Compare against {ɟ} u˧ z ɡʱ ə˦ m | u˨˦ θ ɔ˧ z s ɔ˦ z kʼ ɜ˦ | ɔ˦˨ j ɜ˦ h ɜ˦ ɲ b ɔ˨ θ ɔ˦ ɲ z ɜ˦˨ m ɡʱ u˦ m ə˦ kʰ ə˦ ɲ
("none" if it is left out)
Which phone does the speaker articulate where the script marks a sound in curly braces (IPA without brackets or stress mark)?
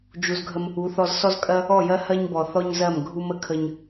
d͡ʒ